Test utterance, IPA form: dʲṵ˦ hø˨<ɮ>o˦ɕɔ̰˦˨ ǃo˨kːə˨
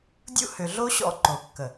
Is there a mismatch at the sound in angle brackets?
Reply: no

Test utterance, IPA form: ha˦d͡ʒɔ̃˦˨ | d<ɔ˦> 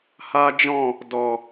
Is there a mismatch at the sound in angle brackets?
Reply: yes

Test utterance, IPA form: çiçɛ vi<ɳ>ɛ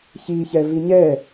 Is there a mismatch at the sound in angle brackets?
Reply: yes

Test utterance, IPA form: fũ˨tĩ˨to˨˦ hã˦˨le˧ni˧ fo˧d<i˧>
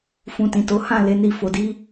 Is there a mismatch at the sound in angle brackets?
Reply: yes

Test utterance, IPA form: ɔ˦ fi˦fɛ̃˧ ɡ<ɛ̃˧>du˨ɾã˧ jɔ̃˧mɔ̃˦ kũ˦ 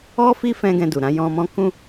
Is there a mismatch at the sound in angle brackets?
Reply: no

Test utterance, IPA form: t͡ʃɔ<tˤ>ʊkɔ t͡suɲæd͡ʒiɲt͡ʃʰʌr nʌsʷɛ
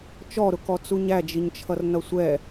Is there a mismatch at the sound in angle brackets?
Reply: yes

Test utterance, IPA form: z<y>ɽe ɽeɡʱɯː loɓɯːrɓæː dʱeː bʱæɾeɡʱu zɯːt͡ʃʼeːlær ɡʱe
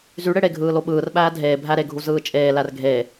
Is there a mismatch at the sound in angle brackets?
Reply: no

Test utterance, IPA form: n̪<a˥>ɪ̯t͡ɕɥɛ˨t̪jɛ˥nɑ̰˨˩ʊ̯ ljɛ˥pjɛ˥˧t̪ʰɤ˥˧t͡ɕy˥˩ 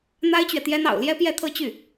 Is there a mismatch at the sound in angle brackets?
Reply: no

